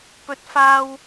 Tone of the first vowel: high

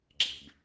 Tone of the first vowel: low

